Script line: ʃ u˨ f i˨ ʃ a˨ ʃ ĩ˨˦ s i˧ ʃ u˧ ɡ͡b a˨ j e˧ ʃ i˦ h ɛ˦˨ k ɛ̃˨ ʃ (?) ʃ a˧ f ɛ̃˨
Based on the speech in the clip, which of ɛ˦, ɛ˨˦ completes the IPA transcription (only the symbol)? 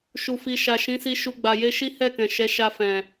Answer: ɛ˨˦